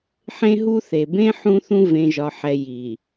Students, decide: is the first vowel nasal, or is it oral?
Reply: nasal